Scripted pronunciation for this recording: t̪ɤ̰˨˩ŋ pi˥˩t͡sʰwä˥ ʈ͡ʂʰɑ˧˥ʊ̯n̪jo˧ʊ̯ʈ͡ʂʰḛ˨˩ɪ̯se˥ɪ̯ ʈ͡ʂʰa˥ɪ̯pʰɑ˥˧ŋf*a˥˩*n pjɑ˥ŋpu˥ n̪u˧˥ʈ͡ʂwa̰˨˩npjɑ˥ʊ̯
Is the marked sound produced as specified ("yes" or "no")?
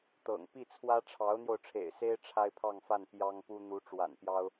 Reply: yes